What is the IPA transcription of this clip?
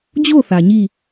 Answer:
d͡ʑ o˦˨ θ ä˨ ɲ i˦˨

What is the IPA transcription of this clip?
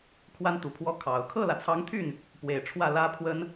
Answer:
kʰ w a˥ n t̪ u˨˩ pʰ w ɔ˥ kʰ ɑ˨˩ ʊ̯ kʰ ɤ˥˩ l ä˩ t͡sʰ ɑ˧˥ ŋ t̪ʰ y˥˩ n | p w e˨˩ ɪ̯ ʈ͡ʂʰ w ä˥˩ l ä˥ pʰ w ə˥ n

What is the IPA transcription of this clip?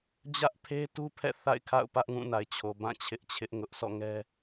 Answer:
d͡ʑ ä˦ ʔ pʰ e˦ t u˦ pʰ ɛ̰˦˨ θ a̰˦˨ ɪ̯ kʰ a̰˦˨ ʊ̯ p ä˦ ʔ ŋ ũ˦˨ n a˨ ɪ̯ t͡ɕʰ o˨ b ã˦˨ t͡ɕʰ ɪ˦ ʔ t͡ɕʰ ɪ˦ ʔ ŋ ʊ˦ ʔ s ɔ̰˦˨ ŋ ɛ˦

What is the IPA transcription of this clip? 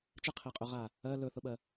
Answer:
t͡ʃ ə qʰ e qʼ ɵ ʁ a | ɜ l ɵ θ ʊ ɓ ɜ

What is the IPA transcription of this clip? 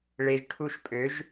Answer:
ɭ e˨ ʒ ʈʰ u˧ ʃ pʼ ø˨˦ ʒ

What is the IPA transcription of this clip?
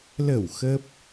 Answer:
l ə˧˩ w x ə˦˥ p̚

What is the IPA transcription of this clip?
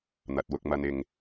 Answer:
n̪ ɐ˨ t̚ w ʊ˧ k̚ m ɐ˧ n ɪ˨ ŋ

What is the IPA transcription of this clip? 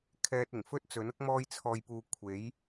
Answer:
kʰ ɛː˧ t̚ ɪ˨˩ ŋ f ɵ˥ t̚ t͡s ɵ˨˥ n ʊ˥ k̚ m ɔː˧ j t͡sʰ ɔː˨ j p uː˨ kʷʰ e˨˥ j

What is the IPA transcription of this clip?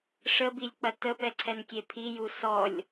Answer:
ʂ ə b i lʲ k͡p ɐ t ə p ɛ ǀʰ ɛ n kʲ e pʰ i j u s ɔ lʲ

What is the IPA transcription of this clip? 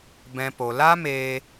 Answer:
b ɛ̃˦ p o˧ l a˦ m eː˦

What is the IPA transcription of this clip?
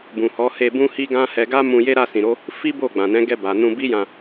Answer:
b ũ˨ h ɔ˨˦ h e˧ b ũ˦ h i˦ ɡ ã˦ h ɛ˧ ɡ a˦ m ũ˧ j e˦ ɾ a˦˨ s ĩ˨ ɾ o˨˦ | f i˦ b o˦˨ ɡ͡b ã˨ n ɛ̃˨˦ ɡ ɛ˧ b a˨ n ũ˧ b i˦ j ã˧

